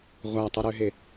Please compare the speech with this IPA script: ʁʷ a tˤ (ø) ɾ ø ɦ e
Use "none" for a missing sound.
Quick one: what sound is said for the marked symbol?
u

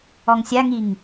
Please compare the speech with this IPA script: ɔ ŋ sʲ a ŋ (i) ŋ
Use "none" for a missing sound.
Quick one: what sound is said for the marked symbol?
i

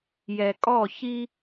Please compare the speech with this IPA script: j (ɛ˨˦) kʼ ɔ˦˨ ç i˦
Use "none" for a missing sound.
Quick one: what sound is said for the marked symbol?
ɛ˨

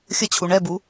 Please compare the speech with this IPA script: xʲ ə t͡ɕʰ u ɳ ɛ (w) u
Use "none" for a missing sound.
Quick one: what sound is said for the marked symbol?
b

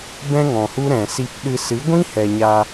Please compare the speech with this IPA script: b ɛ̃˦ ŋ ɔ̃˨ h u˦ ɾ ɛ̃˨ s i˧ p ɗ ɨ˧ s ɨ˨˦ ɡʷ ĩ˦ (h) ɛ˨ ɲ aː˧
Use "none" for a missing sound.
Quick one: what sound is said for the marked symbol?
h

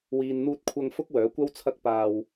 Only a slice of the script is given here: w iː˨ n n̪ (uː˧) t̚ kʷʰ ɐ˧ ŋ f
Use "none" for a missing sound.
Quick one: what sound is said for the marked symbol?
uː˧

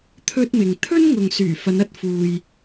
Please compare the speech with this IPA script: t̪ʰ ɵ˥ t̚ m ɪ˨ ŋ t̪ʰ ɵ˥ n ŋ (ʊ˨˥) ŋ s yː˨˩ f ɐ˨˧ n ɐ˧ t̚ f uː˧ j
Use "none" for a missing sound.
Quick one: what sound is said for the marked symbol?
ʊ˨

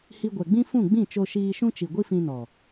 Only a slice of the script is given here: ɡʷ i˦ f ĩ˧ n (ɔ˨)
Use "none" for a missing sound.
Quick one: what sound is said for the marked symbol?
ɔ˨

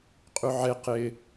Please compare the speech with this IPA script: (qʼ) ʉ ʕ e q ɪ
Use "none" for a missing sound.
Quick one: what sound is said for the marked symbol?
qʼ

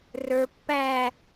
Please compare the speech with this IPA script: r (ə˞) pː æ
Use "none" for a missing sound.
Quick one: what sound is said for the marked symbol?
ə˞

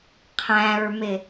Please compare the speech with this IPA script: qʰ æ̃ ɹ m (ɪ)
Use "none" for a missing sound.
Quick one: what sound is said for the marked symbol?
ɪ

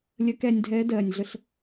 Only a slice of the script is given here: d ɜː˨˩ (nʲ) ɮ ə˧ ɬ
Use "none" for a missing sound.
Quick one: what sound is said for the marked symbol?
nʲ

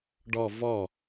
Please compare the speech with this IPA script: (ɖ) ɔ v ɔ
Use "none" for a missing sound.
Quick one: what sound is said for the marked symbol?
ɖ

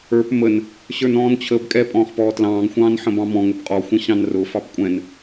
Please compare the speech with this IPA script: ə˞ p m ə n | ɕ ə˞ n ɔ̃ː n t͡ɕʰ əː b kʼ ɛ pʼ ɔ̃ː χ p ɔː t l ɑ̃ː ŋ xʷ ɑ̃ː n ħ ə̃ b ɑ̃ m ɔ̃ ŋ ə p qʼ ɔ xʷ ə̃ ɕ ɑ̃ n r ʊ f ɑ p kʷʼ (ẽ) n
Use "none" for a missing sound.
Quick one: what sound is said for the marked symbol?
ɛ̃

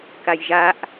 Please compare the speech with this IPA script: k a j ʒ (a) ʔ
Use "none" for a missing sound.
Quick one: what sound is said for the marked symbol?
a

